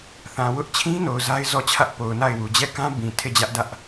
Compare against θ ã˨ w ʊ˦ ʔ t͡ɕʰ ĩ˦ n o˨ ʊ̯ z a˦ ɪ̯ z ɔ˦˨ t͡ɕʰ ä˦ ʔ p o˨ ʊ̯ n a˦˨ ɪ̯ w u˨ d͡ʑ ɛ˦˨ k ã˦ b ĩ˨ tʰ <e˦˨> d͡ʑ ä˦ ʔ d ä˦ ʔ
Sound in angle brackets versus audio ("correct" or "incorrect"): correct